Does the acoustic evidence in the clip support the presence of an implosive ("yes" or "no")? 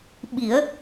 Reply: yes